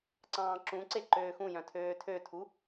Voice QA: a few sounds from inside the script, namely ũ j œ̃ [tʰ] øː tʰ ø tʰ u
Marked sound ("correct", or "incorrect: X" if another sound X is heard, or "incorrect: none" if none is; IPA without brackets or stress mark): correct